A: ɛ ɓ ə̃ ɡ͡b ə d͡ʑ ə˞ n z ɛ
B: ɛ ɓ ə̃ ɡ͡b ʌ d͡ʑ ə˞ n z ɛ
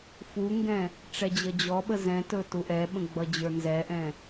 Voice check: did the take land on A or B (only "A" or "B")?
B